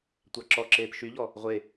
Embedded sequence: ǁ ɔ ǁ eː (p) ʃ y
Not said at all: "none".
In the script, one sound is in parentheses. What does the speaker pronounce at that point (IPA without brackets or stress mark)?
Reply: p